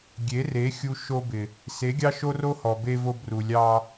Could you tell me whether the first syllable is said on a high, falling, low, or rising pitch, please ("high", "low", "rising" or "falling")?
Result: rising